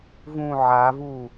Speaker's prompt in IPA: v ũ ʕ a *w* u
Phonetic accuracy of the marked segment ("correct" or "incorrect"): incorrect